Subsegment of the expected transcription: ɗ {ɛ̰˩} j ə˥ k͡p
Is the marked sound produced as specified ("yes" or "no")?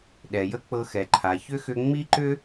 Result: no